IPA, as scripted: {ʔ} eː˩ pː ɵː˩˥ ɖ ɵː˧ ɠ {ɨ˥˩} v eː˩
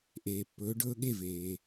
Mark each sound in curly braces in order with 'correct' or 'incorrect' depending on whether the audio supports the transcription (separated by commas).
correct, incorrect